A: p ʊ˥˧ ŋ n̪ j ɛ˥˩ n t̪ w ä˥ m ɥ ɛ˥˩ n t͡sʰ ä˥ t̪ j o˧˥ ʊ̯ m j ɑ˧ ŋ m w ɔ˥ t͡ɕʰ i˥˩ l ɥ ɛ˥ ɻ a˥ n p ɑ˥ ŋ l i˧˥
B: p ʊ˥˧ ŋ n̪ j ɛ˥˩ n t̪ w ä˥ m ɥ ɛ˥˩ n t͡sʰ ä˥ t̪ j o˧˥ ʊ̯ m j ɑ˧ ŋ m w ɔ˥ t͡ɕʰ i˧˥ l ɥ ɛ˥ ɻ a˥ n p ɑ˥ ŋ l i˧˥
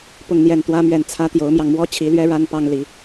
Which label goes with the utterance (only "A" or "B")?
B